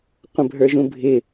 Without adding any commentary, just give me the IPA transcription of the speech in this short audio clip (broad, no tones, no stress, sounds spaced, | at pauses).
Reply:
qʷ ə̃ bʱ ə˞ ʒ ũ bʱ ɪ